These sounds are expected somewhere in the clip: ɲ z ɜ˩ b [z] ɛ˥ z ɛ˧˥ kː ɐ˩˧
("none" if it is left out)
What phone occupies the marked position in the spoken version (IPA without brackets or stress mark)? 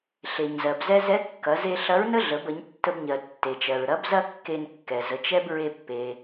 z